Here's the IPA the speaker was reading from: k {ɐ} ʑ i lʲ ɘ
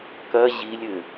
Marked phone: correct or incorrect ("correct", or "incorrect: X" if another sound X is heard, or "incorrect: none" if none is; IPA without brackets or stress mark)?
correct